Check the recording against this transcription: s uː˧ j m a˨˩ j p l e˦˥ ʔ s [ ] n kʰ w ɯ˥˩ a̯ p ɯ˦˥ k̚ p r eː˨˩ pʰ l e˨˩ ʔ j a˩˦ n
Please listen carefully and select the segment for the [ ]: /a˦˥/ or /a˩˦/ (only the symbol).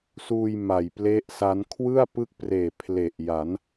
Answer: a˦˥